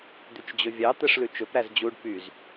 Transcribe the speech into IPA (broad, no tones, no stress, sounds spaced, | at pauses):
d̪ y t͡ʃ d͡ʑ ɵ vʲ ɑ t̪ ɛ ʂ l ʉ t͡ʃ ɵ p ɾ æ z d͡ʑ u ɖ p y z